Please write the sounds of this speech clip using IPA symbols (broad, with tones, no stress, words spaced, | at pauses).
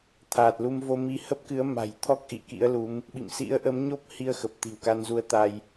t̪ʰaː˨˩t̚lu˧mvo˧mi˧ hə˦˥p̚kɨ˨˦ə̯ma̤˨˩jt̪ʰɔ˦˥k̚ ʔḭ˧˨kḭ˧˥ə̯lu˨˦m | ɓḭ˧˨msḭ˧˥ə̯ʔə˨˦m ɲo˦˥p̚hi˧ə̯xə˨˩p̚ t̪i̤˨˩wka˧nzu˧ə̯t̪a˧j